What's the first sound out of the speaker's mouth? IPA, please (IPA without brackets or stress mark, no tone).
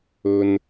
ɵ